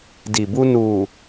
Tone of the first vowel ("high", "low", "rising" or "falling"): low